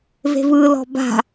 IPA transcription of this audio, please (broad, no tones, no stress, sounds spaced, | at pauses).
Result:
v e̤ v ɯ l ɔ̤ b a̤